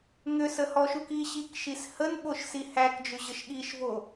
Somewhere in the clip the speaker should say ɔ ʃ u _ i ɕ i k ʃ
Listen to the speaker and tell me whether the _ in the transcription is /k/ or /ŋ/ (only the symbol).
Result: k